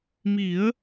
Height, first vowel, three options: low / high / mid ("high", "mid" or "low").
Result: high